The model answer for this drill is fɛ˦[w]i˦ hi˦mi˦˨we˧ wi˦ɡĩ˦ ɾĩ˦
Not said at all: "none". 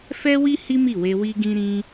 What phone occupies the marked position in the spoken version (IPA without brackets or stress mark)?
w